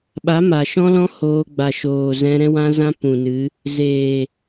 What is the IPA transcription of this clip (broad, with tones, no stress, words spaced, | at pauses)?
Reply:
ɓa˨˦ma˨ʃɔ̃˦lɔ̃˦ hoː˧ɡ͡ba˨ʃoː˨ zɛ̃˧ɾɛ̃˦wã˦zã˦ pũ˨nɨ˨˦ | zeː˨